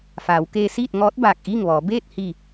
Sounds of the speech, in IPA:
f aː˩˧ w k eː˧ s iː˥˨ t̚ ŋ ɔː˧˥ t̚ b aː˧˩ k̚ ʔ iː˥˨ ŋ ʋ ɔː˩˧ b eː˥˨ t̚ h i˧˩

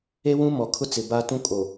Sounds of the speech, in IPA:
e˦ w ũ˦ m ɔ˨ kʰ ʊ˦ t͡s ɪ˨ b a˦ t ũ˦ kʼ o˨

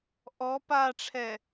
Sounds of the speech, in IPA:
ʔ ɔ p a ʈ͡ʂʰ ɛ

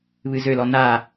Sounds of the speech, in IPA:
β ɨ z ø l ɔ n a

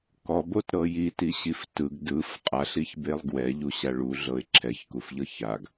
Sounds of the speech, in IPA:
k ɔ b o t ɾ ɤ j i t i ɕ i f t ɯ ɡ d ɯ f qʼ a ɬ i ç b e lˠ ɡ w ɛ ʎ u ɕ a ɭ u ɮ ɤ ɪ̯ ǁʰ ɛ ç k u f ʎ ɤ ç a ɡ

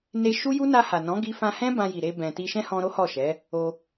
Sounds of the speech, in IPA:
n e˧ ʃ u˦ j u˦ n a˧ h a˨ n ɔ̃˨˦ ɡ i˧ f ã˧ h ɛ̃˦ b ã˧ j i˨ ɾ e˧ b ɛ̃˨ t i˧ ʃ ɛ̃˦ h ɔ̃˧ ɾ o˦ h ɔ˦˨ ʃ ɛ˨˦ | o˧

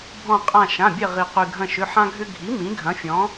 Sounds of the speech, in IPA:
bʱ ɔ̃˧˩ qʼ ã˧˩ ʃ ã˩˧˩ bʲ ɛ˧˩ ʁ i˩ q y˩ ɡʱ ɐ̃˧˩ ʃ ʏ˩˧˩ ħ ã˦ ɡʱ ʏ˦ ɡʱ i˩˥ m ĩ˩˥ ɡʱ ɐ̃˩˥ fʲ ɔ̃˩˥

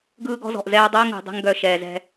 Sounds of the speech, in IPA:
ɡ ɯː˦ ɡ ɔ̤˦ z ɔ̤˨ ʔ z ɛː˦ dˤ əː˦ ŋ ṳ˨ dˤ ɛ̤˦ ŋ ɡ œ˨ ʃ ɛː˨ z ɛ̤˦

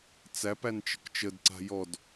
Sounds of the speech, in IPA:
t͡s æ p æ n t͡ʃ ə̤ k t͡ʃ ə d ǀ a̤ j ɔ d

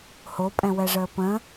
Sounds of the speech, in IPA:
h o pʼ ɛ̃ w ɛ ʐ əː p ə̃

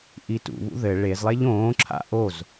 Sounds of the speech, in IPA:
ʔ i t ṵ β ṵ ð ɘ ɭ e z lˠ e ʎ õː ǁʰ a̰ ʔ o z

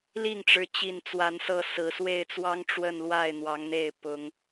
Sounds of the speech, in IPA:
l i˥˨ ŋ ʈ͡ʂ ɻ̩˨˦ t͡ɕ i˨˩ n t͡s w a˨˦ n s ɤ˥˨ s ɹ̩˨˩ s w e˥˨ ɪ̯ t͡s w ɑ˦ ŋ ʈ͡ʂ w ə˥˨ n l w a˥˨ ɪ̯ n̪ w ɑ˨˦ ŋ n̪ e˥˨ ɪ̯ p ʊ˨˦ ŋ

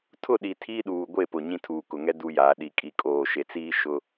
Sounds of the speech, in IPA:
tʰ ʊ˦˨ ɗ i˨ tʰ iː˦ ɗ uː˨ ɡʷ e˦˨ p ʊ˨ ɲ ĩ˦ tʰ uː˨ k ʊ˨ ŋ ɛ˦ d u˦ j aː˨˦ ɗ i˨ kʼ i˨ kʼ oː˨ ʃ e˨ t͡s iː˦ ʃ ʊ˦

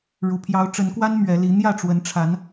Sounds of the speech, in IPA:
ɻ u˨˩ pʰ j ɑ˨˦ ʊ̯ ʈ͡ʂ ə˨˦ n k w a˦ n m ɥ ɛ˨˦ l i˨˦ n̪ j ä˥˨ ʈ͡ʂ w ə˨˦ n ʈ͡ʂʰ a˨˦ n

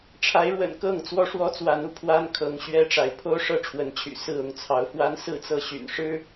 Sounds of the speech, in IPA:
ʈ͡ʂʰ a˨˦ ɪ̯ ɻ w ə̰˨˩ n k ɤ˥˨ ŋ t͡s w ɔ˦ ʂ w ɔ˦ t͡s w a˨˦ n u˥˨ pʰ w a˦ n kʰ ɤ˨˦ ŋ ɕ ɥ ɛ˦ ʈ͡ʂ a˨˦ ɪ̯ pʰ o˦ ʊ̯ ʂ ɤ˦ ʈ͡ʂʰ w ə˨˦ n t͡ɕʰ y̰˨˩ s ɹ̩˥˨ ʊ˥˨ ŋ t͡sʰ ɑ˨˦ ʊ̯ f w a˦ n s ɹ̩˥˨ t͡s ɤ˥˨ ɕ y̰˨˩ n ʂ ɻ̩˦

